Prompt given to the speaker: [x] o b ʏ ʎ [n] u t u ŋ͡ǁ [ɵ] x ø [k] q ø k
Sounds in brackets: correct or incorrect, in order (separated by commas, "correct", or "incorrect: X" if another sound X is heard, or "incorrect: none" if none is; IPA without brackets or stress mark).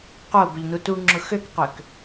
incorrect: q, correct, incorrect: ʊ, correct